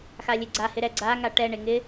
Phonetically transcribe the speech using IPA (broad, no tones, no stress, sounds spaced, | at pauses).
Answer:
x a lʲ e ɡ͡ǀ a h ɪ ɾ ɛ ɡ͡ǀ a ŋ a ʈ ɛ ɳ e ŋ ɪ